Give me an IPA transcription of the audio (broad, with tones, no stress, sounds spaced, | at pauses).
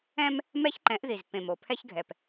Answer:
ɛ̃˦ m | m ɛ˦ ç ǃ ɛ̃˨˦ ʔ ð i˨ z pː ẽ˨ m o˨ pʰ ɛ˦ ç ɡʱ ɛ˨ p